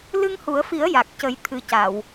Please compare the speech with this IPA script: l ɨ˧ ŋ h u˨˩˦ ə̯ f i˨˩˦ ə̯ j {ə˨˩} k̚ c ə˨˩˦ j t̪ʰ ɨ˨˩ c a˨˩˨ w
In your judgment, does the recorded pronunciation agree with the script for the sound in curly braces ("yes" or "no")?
no